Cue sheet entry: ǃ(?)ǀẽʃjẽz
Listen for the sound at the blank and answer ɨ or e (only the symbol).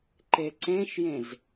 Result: e